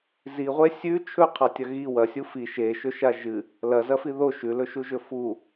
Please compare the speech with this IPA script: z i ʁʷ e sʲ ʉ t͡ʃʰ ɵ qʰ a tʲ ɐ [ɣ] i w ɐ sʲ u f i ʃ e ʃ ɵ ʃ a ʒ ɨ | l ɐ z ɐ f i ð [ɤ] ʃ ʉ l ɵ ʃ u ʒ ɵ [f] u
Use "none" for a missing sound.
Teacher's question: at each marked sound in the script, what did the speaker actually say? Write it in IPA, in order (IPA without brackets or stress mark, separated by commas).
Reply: ɣ, o, f